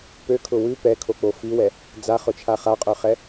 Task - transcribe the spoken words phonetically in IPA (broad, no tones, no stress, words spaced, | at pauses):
pøkʰʊ wʉ pɛkʰok͡po fiwɛ | d͡zaχʊt͡ʃʰa χaqʼøχɛ